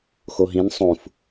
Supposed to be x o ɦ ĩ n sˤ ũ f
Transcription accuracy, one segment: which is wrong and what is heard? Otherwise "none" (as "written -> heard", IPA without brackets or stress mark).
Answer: none